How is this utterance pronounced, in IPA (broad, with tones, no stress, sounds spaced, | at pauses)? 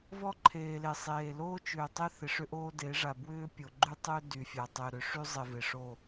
v ɔ˦ ǃʰ eː˨ l e˨ sˤ eː˨ l oː˦ t͡ʃ ʏː˨ tˤ ɪ˦ θ ɪ˨ ʂ ʏ˦ ʔ oː˦ d e˨˦ ʐ a˨ b w ʏː˦ pʲ o˨ ɡ͡ǃ y˦ tˤ ʏː˦ d y˨ fʲ a˨ tˤ ʏː˨ ɾ ʏ˨ ʂ y˦ zˤ ɪ˨ v ɪ˨ ʂ o˦˨